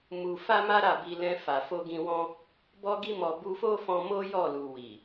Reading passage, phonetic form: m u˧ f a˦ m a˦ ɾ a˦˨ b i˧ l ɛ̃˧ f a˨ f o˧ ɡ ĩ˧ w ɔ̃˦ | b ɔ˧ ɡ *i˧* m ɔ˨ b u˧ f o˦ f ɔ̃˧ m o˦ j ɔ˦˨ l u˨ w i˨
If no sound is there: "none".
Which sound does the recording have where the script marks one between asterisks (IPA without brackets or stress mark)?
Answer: i˧